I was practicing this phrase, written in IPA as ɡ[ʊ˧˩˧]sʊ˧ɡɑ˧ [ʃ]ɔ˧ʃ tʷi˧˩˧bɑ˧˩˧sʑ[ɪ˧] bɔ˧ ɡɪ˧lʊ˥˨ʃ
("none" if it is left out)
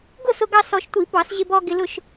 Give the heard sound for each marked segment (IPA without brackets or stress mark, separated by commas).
ʊ˥˨, s, ɪ˧